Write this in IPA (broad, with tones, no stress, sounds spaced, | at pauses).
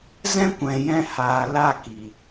z ɛ̃˦ kʷ ɛ̃˨ j ɛ̃˧ h aː˨ l a˦˨ k i˨